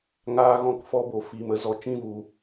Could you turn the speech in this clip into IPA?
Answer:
ŋaː˧ɣɔ̃˧kfɔ˧bo˨ fiː˨mə˧zɔ˨ t͡ʃĩ˦˨vu˨

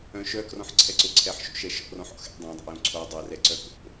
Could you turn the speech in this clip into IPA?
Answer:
œ̃ ʃœkrɔ̃ħ ǀʰɛǀʊ ǀʰɛħʃo̰ ʃɛʃɔ̰rɔ̃ħɔ̰ xɛ̰ dˤœ̃dˤɛ̰jõ ǀʰo dˤɛrɛ ǀœko̰

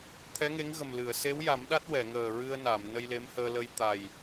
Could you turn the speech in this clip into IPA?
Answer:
t̪ʰɛ˧˥ŋe˧˥ŋɣə˨˩mlɨ˨˩˨ə̯ se˧˥wja˨˩˦m ɗa˦˥t̚ wɛ˨˩˨ŋəː˨˩ɹɨ˧ə̯ na˨˩˨m nə˧jle˧˥mhəː˧lə˧j t̪a˨˩j

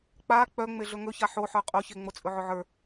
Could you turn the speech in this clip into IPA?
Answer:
k͡pa k͡pœŋ͡meɮɵ ŋɵça ħoħə˞ qʼoçe ŋ͡mot͡sʼɵʕɵʕə˞

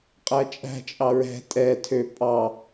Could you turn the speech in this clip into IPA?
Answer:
qʼæt͡ʃʼæ̤ t͡ʃʼɑɹɛ̤ tʼɛ tʰø pʼɑ

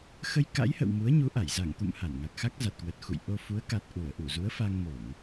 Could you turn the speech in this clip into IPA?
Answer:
xə˧jka̰˧˥jhə̰˧˨w mu˨˦ə̯ɲu˨˦ʔa˧˩j za˧˩ŋt̪ṵ˧˨m ha˧˩nŋa˨˩k̚xa˦˥k̚ za˨˩t̚kwə˨˩t̚ xṵ˧˨j ʔo˧ fu˨˦ə̯ka˨˩t̚ʔu˧˩ə̯ ʔu˧˩zu˨˦ə̯ fa˧ŋmo˧˩˨ŋ

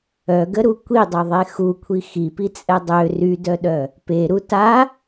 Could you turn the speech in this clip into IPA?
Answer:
œɡəɾu kʷidˤøðˤe xukʷʰi xipit͡sʼɛ dˤø rydœɗœ | peɾu ta

